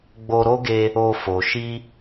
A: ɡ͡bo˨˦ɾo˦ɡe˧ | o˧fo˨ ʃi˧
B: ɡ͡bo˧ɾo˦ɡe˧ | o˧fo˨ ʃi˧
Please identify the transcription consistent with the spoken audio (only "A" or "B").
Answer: B